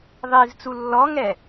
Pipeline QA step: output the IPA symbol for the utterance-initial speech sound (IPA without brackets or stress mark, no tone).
ðˤ